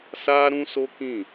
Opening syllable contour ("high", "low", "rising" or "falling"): high